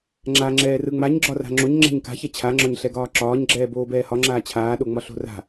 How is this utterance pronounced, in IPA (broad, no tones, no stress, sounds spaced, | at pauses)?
ŋ͡ǁ a ŋ͡ǁ ɛː r ɯ ŋ͡m a ɲ ɡ͡ǁ ɒ r a̤ ŋ͡ǁ o ɲ ŋ͡ǁ ɛ̤ ɲ k a̤ ç ɛ t͡ɕʰ a ŋ͡ǁ ɒ ɲ ɬ ɛ ɡ ɒː ǁ ɒː ɲ ɡ͡ǁ ɛː b oː b ɛː h ɒ ŋ͡ǁ aː t͡ɕʰ aː ɗ o ŋ͡m ɒ ɬ o̤ r a̤